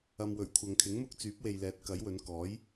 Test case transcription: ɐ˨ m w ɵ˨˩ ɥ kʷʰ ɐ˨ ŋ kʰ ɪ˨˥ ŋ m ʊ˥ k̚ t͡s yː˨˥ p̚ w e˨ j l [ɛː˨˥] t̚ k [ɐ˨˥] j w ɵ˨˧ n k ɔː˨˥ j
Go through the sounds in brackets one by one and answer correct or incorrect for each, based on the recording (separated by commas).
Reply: correct, correct